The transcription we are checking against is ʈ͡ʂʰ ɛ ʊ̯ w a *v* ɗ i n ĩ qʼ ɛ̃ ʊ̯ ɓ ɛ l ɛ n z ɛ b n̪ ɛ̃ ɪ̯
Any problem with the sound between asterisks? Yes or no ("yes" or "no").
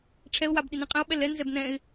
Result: yes